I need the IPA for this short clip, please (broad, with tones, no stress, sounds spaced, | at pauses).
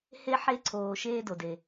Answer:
h e˧ ħ e˧ ǀʰ oː˩ ʃ eː˧ d o˩ d e˩